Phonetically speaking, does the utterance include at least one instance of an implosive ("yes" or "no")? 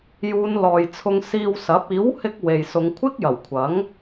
no